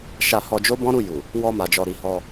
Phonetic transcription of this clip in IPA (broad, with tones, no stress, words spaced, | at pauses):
ʃa˧hɔ˧ d͡ʒo˦bɔ̃˦ɾu˦˨ ju˨ | wɔ˧ma˨d͡ʒɔ˨ɾi˨ hɔ˧